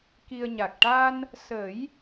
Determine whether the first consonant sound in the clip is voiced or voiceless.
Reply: voiceless